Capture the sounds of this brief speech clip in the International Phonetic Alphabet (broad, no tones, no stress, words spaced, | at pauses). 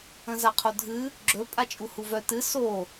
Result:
ə̃zaqʰodʱɨ | ɡ͡ǁɵ pʼat͡ʃʼuhuvœ tɨ so